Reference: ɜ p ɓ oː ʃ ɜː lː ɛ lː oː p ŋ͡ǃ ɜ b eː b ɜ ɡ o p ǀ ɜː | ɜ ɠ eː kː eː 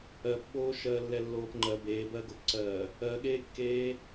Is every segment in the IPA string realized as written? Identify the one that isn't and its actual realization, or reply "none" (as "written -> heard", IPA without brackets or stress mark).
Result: none